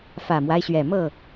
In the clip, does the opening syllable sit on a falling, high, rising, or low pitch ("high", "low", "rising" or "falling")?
low